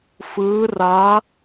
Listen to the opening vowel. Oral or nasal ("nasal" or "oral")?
oral